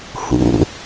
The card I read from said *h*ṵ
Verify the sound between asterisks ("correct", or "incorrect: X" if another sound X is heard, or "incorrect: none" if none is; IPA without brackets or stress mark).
correct